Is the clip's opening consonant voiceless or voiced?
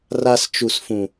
voiced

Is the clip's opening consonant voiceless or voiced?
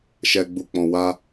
voiceless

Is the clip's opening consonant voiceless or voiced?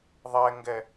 voiced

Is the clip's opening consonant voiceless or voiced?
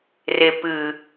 voiced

